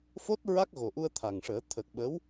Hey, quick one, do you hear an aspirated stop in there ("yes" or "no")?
yes